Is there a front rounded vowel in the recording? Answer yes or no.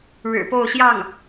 no